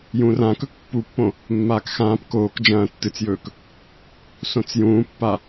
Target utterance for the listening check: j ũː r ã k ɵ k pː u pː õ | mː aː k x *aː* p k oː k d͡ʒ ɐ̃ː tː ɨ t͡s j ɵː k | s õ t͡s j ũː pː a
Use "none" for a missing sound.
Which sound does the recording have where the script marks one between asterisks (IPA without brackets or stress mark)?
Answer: ãː